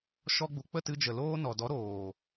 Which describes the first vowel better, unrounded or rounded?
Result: rounded